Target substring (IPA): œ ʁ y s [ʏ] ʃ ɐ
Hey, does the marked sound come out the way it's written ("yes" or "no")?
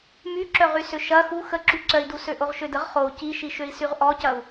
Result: yes